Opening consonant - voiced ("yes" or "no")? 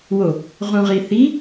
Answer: yes